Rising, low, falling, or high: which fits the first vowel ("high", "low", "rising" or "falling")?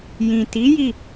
low